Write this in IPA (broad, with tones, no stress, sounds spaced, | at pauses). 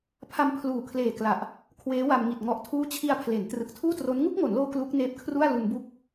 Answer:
pʰ a˧ m pʰ l uː˨˩ kʰ l eː˨˩ k l a˨˩ ʔ | kʰ w eː˦˥ w a˧ m ŋ i˨˩ t̚ ŋ ɔ˨˩ ʔ tʰ uː˦˥ t͡ɕʰ i˧ a̯ pʰ l e˩˦ n t r ɯ˨˩ k̚ tʰ uː˥˩ t r o˦˥ n ŋ u˥˩ k̚ ŋ o˩˦ n l oː˧ k l u˦˥ k̚ n eː˦˥ p̚ kʰ r u˥˩ a̯ l u˧ n b u˥˩ k̚